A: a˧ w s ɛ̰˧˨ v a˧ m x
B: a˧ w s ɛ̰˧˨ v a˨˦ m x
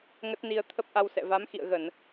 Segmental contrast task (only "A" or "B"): B